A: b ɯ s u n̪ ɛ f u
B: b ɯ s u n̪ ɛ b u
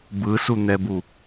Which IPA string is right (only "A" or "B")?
B